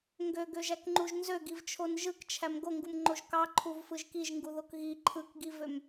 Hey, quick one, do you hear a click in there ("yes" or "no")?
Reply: yes